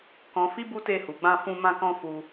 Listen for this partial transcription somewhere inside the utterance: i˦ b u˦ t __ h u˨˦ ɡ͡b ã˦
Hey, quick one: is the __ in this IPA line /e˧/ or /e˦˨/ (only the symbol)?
e˦˨